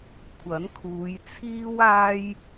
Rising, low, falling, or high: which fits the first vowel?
rising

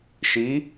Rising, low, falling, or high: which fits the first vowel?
rising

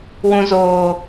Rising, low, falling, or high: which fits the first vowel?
low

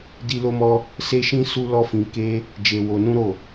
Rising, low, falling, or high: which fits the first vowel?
high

